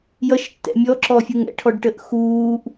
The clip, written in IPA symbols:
j ʌ ʃ tː ɛ̰ mʲ ɔ ǁ ɔ fʲ u ŋ ɛ̰ ʈʰ ɔ ɖ ʈ ə ʔ x uː ʔ

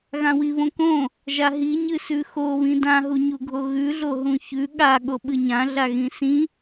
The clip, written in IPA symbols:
ɣ ã w i β õ k õ | ʒ a ɦ i ɲ ɨ s ʉ x o β ĩ d ã ɦ u ɲ u ɡʱ o ɣ ʉ ɮ o ɦ ũ ç ʉ ɠ a ɠ o ɓ ɨ ɲ ã ɮ a ɣ ĩ s ĩ

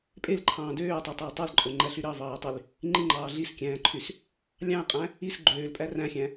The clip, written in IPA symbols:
pʼ e l ǃʰ ɑ̃ː d øː tˤ ø tˤ æ e̯ tˤ æ l ǃʼ o ŋ͡ǃ æ ɬ y ɾ ɑ v ɑː e̯ tˤ y l | ŋ͡ǃ i ŋ͡ǃ ɑː ɮ i s kʲ æ̃ː ǃʰ y s | lʲ ɑ̃ e̯ qʼ æ̃ | i s ɡ͡ǃ øː l pʼ æ r æ̃ xʲ æ̃

